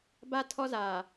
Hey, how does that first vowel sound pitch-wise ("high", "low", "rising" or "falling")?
high